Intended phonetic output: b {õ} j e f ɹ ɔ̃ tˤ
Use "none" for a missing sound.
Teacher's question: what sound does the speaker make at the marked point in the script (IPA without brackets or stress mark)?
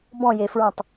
ɔ̃